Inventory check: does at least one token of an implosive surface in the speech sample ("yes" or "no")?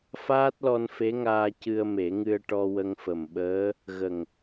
yes